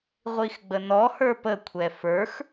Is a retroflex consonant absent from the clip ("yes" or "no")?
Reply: yes